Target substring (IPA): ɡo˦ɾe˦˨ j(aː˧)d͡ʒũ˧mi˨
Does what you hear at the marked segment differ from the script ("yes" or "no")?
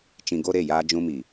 no